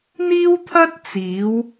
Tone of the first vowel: high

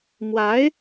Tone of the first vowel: rising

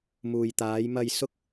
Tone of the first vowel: low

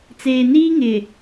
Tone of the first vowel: low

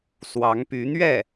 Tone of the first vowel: rising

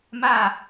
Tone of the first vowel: falling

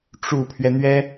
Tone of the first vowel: low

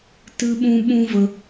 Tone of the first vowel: high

